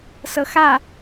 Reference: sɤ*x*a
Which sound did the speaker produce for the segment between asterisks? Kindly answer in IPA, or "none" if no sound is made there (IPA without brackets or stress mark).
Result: x